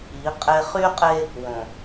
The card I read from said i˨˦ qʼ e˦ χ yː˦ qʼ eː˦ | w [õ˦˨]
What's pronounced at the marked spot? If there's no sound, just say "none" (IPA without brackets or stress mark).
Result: õ˨